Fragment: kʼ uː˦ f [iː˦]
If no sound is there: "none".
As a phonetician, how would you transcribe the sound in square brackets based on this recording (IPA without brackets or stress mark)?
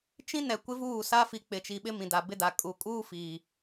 iː˨